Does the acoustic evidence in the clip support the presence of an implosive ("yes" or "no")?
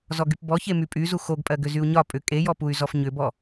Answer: no